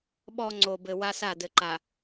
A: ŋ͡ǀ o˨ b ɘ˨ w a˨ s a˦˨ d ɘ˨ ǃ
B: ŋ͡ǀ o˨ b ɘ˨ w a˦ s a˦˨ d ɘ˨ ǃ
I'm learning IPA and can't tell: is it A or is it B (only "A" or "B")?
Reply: B